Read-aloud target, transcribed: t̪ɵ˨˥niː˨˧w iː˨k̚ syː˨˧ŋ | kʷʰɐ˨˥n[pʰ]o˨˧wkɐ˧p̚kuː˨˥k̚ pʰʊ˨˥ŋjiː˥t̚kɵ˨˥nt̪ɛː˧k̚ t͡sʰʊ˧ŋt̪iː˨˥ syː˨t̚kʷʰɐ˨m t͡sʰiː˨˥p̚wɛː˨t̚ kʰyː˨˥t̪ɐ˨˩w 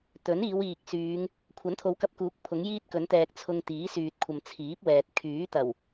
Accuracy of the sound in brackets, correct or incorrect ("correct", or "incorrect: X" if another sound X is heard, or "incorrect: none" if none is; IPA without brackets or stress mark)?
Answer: incorrect: t̪ʰ